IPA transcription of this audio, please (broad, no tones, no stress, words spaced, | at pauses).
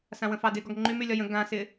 sãwə̃fɑdɪ ɡɔɡŋ͡ǃymylʲɒ jə̃ ɡãsɪ